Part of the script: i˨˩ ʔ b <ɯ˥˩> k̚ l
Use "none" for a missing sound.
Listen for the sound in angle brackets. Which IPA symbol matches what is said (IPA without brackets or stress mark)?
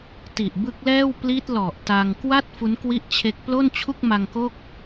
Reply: ɯ˦˥